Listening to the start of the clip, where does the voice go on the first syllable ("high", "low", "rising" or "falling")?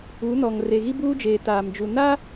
rising